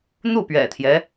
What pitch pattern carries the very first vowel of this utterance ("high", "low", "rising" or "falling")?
falling